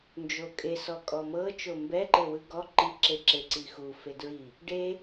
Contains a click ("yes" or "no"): yes